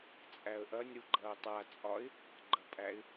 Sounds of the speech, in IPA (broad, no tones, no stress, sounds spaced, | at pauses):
t͡sʼ æ ə̯ ʔ ɐ nʲ ɾ u ɡ͡ǃ ɐː tˤ a t͡sʼ ɒ ɪ̯ | ɡ͡ǃ ɐ pʼ æ ɪ̯